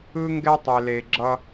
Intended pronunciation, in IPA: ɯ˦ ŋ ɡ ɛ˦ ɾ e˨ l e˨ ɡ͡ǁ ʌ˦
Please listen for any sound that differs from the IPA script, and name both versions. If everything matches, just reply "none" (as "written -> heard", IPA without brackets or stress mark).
ɾ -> tˤ